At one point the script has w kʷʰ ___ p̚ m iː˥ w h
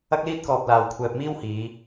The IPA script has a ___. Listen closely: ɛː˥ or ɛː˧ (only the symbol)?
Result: ɛː˧